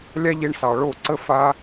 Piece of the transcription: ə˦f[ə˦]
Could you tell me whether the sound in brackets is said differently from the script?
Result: yes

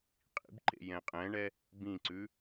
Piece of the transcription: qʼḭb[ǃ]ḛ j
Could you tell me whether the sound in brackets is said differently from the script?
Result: no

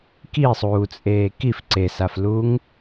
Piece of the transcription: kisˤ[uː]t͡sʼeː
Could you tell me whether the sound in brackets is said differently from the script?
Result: no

